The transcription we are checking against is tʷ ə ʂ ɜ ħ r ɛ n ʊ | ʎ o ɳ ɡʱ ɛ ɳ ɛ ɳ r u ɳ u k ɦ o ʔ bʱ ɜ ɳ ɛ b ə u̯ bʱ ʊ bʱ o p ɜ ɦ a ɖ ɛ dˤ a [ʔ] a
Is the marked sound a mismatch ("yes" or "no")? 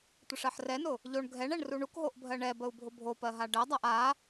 no